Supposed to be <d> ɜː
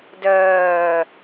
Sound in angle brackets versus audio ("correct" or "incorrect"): correct